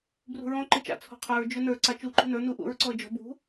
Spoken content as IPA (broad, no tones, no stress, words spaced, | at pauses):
brṳɹɔ̃ ǃɨt͡ʃa̰ t͡sʰɔ̤qʰə˞ɹ d͡ʒɵnə˞ ǀat͡ʃu ǃṳnə˞ nuʔṵɹ ǀɔə̯d͡ʒɔ̤ bṳ